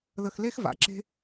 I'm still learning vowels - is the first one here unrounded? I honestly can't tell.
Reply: yes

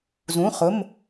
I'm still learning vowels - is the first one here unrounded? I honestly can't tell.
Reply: no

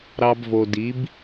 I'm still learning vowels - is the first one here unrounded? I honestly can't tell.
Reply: yes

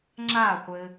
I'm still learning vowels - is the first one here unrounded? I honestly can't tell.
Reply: yes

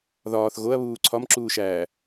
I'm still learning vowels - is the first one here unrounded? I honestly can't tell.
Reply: no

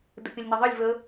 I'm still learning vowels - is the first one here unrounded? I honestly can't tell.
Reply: yes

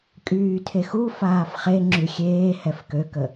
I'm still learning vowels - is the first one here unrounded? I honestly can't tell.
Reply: no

